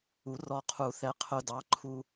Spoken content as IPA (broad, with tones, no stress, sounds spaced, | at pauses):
u˨˩˦ r ɔ˧ qʰ u˨˩˦ θ ɛ˧ qʰ ʊ˧ d ɑ˨˥ ǃʰ u˧